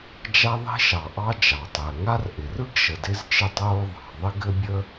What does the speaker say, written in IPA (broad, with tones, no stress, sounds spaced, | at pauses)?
d͡ʒ a˥ ðˤ i̤˥ ʃ ɑ˩ ʔ ɑ˥ d͡ʒ ɑ˩ tˤ ɘː˩ ŋ a˥ r ʔ ɪ˩ r ɯ˥ ɡ ʃ ə˩ d ɪ˥ z t͡ʃ ɪ˥ tˤ oː˥ ðˤ ɑ̤˩ ðˤ ɪ˥ ɡ ɘ˥ bʲ ə˥